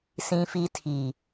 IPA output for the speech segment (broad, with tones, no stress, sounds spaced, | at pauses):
s ĩ˦ f i˦ tʰ i˨